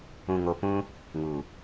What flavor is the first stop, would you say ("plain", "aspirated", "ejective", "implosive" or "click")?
plain